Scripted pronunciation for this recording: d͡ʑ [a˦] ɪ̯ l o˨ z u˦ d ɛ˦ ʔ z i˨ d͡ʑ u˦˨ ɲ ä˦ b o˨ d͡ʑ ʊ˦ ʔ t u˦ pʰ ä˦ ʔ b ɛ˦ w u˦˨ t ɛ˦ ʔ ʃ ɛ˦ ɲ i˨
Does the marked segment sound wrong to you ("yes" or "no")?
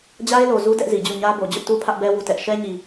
no